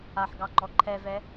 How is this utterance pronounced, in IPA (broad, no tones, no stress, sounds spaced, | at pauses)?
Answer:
a ħ ɡ ɑ ŋ͡ǃ ɔ ǃʰ ɛ v ɛ